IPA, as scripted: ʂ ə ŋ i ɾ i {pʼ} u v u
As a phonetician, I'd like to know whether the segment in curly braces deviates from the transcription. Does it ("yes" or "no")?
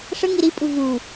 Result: no